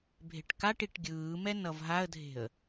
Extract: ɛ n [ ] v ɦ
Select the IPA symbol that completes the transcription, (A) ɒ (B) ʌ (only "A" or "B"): B